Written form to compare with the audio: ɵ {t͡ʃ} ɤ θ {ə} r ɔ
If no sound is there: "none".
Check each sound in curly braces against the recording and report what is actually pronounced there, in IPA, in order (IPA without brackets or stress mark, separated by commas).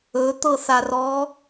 t̪, a